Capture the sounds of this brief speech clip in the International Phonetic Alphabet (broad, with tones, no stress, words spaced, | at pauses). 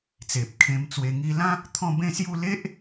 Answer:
t͡se˨p̚kʰẽ˧mt͡swe˧ ŋi˧lã˦ | t̪ʰɔ̃˥˧bẽ˥˧sju˥˧ le˦ʔ